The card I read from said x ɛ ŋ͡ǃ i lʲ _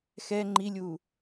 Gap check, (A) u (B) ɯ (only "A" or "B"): A